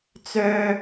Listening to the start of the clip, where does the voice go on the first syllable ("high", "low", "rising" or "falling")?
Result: high